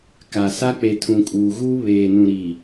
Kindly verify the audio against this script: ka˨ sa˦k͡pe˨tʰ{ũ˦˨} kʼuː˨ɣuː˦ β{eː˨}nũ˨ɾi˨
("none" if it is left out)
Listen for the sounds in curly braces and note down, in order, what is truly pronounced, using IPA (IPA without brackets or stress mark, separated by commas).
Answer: ũ˨, eː˨